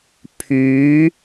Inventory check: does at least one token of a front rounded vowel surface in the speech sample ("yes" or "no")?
yes